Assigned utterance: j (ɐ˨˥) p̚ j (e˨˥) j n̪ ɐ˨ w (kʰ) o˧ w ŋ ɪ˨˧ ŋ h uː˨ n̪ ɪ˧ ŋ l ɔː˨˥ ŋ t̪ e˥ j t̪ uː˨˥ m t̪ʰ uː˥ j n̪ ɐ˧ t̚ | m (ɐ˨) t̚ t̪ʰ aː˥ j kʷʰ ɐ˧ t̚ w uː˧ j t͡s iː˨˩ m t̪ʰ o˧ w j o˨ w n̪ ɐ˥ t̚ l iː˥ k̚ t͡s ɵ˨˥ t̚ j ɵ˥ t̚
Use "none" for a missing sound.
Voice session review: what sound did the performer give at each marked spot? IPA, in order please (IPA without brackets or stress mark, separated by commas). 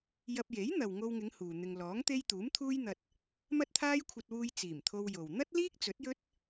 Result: ɐ˧, e˨˥, ŋ, ɐ˥